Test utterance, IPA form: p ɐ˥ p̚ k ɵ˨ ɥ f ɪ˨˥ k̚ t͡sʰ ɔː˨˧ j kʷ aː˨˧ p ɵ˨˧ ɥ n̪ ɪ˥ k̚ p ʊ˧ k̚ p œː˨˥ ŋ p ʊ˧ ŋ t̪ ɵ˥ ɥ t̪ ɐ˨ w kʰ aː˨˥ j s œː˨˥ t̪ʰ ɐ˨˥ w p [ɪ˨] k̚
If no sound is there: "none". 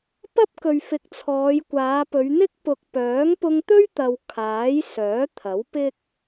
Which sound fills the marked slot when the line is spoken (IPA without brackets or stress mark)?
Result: ɪ˥